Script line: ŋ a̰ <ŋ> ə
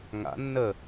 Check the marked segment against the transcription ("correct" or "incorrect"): incorrect